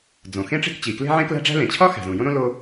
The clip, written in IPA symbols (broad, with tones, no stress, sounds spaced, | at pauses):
d͡z õ˩ x ẽ˥ ʈ͡ʂ e̤˥ k t͡ɕ i˩ k l e̤˥ ʕ ẽ˥ k l æ̤˥ ɖ͡ʐ æ̤˥ l ẽ˩ t͡ɕʰ ɒ˥ x æ̤˩ z ũ˩ j õ˥ ɾ õ˥ l o˥